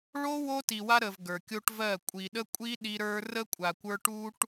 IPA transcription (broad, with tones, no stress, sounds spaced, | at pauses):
ɭ o˦ w o˦ t i˨ w a˦ ɾ ə˨ v ɡ ə˞˨ kʲ o˦ ʈ v ɜ˦˨ kʷʼ i˨ ɗ ə˦ kʷʼ i˦ ɗ i˦ ɾ ə˞˦ r ə˦ kʷʼ a˨ kʷ ə˞˦ ʈ u˦ ʈ